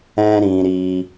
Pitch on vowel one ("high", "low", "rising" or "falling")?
high